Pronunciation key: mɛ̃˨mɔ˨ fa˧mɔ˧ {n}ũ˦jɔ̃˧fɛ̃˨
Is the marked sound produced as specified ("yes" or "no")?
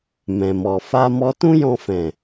no